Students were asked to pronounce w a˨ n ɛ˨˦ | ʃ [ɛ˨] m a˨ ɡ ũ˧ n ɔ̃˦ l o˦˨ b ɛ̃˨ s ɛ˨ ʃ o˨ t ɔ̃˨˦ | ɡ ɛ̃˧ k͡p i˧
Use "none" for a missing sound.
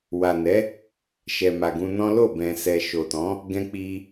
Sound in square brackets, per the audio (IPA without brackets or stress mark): ɛ˨